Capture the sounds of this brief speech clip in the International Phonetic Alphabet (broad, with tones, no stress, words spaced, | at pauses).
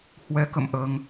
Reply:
hwɛ˨˦kə̰˧˨mʔəː˧ŋ